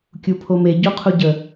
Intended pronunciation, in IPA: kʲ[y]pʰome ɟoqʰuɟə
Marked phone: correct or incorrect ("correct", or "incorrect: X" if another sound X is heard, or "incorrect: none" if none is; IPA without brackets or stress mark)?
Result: incorrect: u